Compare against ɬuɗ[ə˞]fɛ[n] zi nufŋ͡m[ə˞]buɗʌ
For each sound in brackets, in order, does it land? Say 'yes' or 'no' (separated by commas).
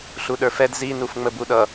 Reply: yes, no, no